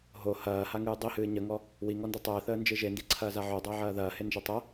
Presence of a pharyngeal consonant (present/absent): present